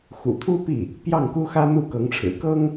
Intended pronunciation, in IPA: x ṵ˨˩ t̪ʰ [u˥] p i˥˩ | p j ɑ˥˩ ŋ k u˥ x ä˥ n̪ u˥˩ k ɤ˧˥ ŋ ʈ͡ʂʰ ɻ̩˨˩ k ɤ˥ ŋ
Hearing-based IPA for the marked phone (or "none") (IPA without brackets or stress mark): u˥